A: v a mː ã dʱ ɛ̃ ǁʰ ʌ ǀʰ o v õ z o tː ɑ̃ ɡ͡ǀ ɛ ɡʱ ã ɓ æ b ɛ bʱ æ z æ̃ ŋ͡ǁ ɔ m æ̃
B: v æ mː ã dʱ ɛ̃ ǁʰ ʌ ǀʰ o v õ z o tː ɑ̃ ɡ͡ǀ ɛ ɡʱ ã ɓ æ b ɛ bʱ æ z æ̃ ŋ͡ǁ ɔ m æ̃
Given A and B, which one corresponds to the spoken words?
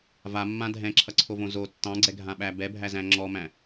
A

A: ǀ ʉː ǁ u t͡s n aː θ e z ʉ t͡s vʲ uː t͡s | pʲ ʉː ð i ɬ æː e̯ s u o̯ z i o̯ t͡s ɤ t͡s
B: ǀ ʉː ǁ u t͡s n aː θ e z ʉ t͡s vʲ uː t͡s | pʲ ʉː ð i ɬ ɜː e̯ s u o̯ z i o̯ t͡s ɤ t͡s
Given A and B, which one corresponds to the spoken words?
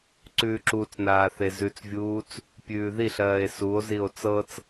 B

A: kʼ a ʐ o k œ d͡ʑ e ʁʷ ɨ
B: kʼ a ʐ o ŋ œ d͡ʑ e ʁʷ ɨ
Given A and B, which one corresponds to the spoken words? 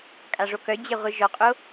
A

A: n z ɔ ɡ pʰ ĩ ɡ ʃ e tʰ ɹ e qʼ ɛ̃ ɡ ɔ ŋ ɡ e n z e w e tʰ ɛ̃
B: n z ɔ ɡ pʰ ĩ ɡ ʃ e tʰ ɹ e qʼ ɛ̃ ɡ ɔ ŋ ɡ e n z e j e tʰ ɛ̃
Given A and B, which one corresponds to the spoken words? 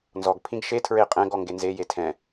B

